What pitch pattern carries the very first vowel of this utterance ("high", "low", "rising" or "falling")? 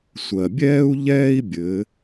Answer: low